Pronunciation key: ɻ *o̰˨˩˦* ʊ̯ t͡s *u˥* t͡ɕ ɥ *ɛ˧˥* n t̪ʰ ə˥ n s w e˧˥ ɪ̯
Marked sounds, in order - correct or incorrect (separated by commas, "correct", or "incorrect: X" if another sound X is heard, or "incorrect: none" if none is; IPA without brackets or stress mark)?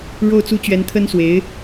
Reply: incorrect: o˥˩, correct, correct